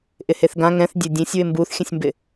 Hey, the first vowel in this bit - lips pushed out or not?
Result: no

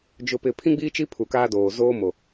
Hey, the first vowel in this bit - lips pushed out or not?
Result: yes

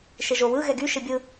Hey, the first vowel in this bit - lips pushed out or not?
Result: no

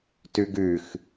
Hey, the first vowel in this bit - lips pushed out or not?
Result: yes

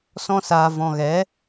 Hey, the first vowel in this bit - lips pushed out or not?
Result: yes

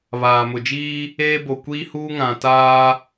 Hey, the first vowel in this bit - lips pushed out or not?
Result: no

